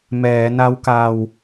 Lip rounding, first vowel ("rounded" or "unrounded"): unrounded